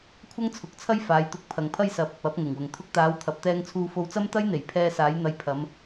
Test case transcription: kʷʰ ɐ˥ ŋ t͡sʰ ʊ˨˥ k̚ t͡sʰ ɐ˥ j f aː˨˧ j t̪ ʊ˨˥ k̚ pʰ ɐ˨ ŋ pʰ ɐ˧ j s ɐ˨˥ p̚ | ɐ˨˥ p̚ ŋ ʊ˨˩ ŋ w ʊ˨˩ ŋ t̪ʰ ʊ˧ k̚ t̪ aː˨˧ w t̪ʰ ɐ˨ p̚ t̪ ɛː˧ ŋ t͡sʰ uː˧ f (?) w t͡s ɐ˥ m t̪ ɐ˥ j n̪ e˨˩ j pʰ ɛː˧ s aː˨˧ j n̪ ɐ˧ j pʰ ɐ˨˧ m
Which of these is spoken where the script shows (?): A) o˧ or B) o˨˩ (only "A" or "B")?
A